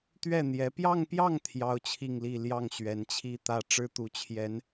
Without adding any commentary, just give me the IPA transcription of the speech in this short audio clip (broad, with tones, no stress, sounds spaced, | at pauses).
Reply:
t̪ ɥ ɛ˥˩ n̪ j ɛ˧˥ p j ɑ˥˧ ŋ p j ɑ˥˩ ŋ t̪ʰ j ɑ˥ ʊ̯ t͡ɕʰ i˥˧ ŋ l i˥˧ l j ɑ˥˩ ŋ ɕ ɥ ɛ˧˥ n t͡ɕʰ i˥ t̪ ä˥˩ ʈ͡ʂ ɻ̩˥ t̪ u˧˥ t͡ɕʰ j ɛ˧˥ n